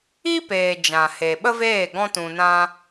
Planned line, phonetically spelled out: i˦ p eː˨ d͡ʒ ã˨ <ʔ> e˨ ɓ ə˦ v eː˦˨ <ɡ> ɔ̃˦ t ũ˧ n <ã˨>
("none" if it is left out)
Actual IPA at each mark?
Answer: h, ɡ, ã˦

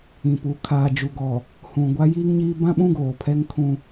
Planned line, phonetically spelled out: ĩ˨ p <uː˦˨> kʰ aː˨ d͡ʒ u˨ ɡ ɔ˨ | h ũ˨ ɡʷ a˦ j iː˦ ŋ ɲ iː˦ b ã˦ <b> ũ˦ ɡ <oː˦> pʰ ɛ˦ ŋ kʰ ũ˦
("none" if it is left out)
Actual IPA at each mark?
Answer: uː˨, ɓ, oː˨

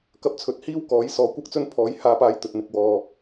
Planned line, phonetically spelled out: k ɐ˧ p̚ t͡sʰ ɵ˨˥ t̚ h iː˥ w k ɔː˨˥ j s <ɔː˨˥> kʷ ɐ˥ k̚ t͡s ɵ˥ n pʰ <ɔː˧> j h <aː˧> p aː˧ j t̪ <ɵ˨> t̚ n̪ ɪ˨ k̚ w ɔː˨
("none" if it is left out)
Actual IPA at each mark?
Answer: ɔː˨˥, ɔː˨˥, aː˧, ɵ˨

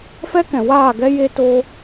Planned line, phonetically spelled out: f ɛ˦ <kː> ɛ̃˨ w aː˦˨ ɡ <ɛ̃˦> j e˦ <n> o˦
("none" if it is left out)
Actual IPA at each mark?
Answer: k, ɛ˦, t

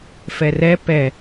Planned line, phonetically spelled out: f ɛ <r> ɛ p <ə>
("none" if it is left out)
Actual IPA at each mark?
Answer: r, ɛ

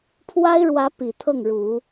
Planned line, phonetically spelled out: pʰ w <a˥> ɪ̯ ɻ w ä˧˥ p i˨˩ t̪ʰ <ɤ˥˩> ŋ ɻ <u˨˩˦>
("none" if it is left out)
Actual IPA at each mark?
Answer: a˥, ɤ˥˩, u˨˩˦

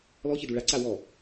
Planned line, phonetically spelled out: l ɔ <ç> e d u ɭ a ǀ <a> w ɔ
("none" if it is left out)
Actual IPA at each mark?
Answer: ç, a

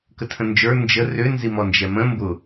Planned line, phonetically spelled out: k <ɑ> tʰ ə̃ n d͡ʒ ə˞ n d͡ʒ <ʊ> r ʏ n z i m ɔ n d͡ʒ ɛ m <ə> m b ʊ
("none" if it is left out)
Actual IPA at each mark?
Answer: ə, ə, ə̃

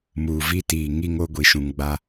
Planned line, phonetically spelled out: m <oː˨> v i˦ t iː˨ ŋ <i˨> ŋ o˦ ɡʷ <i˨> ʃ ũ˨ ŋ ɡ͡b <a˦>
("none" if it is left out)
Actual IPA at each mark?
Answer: uː˨, i˦, i˨, a˦

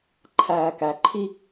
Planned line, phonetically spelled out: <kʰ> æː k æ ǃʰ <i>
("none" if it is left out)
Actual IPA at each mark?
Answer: ǃʰ, i

